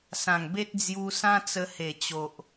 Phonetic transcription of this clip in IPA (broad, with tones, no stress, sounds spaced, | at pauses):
s ã˨˩ ŋ b e˦ t̚ d͡z j u˧ s ã˦ t͡s ə˧ h e˨˩ t͡ɕ o˨ ʔ